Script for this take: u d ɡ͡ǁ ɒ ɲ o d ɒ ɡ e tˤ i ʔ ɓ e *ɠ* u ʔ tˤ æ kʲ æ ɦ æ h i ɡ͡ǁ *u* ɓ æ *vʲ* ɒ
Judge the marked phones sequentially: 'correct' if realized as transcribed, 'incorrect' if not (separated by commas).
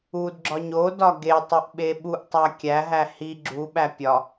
incorrect, correct, incorrect